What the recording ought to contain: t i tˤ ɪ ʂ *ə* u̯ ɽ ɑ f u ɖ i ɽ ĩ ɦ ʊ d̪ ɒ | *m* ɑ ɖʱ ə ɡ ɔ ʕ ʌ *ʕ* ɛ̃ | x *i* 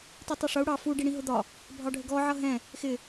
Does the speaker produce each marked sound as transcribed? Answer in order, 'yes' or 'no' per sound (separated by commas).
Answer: no, no, no, no